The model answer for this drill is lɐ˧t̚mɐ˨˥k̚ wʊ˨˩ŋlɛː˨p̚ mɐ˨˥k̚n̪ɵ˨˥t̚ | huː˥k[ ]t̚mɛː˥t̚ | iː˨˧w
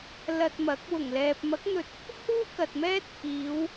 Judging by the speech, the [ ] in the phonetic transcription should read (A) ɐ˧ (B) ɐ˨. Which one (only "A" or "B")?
B